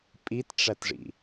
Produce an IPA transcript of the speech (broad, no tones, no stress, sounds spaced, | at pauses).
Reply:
pʼ i t ʈ͡ʂ æ t ʐ ḭ